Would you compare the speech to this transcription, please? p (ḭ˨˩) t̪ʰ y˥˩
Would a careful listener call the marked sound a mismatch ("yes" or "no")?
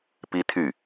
yes